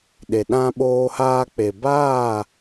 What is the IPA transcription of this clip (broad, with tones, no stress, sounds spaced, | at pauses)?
ɗ e˨ ɗ ã˦ ɓ oː˧ h aː˧ k͡p e˨ b aː˦˨